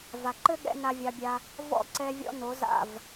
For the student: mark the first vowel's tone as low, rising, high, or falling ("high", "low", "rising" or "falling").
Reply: low